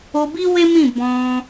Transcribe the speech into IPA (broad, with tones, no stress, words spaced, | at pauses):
o˧bi˦we˦mĩ˦˨ bɔ̃˧